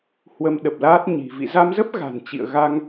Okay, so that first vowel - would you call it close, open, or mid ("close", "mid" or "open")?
mid